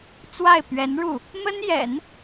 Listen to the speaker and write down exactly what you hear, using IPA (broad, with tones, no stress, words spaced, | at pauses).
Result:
t͡swa˥˩ɪ̯pɥɛ˧˥nɻu˥˩ | mə˥njɛ̰˨˩˦n